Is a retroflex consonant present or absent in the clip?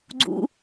absent